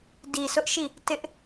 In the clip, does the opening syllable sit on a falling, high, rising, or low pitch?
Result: low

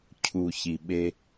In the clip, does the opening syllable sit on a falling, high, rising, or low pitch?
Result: low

